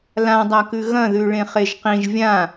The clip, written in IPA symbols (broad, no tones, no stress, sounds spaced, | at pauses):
l ã dˤ a k ʉ ɣ ɐ̃ ð ʉ ɭ ẽ χ e ʒ q ĩ ʒ vʲ ã